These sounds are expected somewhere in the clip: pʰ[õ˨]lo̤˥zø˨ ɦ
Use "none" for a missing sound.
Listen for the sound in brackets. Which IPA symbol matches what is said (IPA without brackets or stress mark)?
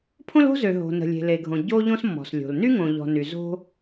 õ˥